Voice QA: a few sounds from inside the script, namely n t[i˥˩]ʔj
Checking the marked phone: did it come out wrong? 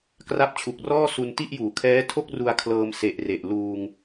no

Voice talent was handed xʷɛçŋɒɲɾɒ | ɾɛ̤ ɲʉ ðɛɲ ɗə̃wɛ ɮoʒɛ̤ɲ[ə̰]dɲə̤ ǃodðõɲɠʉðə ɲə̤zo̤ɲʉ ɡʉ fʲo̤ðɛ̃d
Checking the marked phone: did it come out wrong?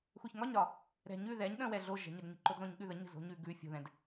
yes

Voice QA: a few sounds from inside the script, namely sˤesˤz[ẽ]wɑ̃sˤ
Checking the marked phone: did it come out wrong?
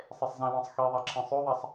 yes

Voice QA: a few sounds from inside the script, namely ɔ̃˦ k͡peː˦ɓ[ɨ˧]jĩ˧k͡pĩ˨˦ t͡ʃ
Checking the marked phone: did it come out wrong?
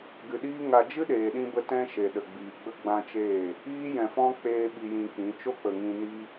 yes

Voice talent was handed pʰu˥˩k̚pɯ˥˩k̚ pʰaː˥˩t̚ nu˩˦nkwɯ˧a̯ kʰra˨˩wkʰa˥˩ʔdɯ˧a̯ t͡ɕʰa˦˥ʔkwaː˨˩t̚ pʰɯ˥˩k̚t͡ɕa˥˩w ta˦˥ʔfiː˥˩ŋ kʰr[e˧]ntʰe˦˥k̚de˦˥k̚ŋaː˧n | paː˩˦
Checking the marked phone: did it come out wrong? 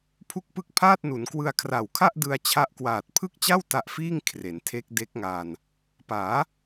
yes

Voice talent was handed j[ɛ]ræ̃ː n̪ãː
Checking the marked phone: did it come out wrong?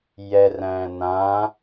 no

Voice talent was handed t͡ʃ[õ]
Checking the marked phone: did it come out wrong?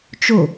yes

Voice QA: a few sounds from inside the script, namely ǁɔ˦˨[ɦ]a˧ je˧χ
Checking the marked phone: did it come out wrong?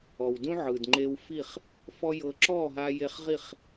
no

